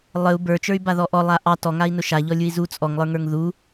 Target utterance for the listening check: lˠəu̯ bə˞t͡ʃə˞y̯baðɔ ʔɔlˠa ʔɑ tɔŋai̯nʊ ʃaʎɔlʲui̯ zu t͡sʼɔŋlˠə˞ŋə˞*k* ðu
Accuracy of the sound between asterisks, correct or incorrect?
incorrect